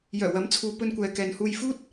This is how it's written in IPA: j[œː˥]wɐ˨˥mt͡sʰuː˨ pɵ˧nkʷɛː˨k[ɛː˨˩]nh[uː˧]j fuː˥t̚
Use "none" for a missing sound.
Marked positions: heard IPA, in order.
œː˨˩, ɛː˨, uː˧

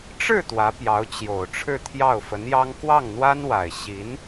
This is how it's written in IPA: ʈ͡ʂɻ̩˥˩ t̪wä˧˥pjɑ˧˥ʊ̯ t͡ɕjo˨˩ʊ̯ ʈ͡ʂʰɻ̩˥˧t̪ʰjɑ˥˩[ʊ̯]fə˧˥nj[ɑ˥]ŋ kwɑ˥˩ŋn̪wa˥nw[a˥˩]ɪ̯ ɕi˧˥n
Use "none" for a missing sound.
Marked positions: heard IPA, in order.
ʊ̯, ɑ˥, a˨˩

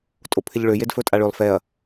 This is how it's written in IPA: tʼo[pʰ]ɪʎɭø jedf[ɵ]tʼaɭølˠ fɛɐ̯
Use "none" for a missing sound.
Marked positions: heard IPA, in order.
pʰ, ɵ

